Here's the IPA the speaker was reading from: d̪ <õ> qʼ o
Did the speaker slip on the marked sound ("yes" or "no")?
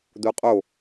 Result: yes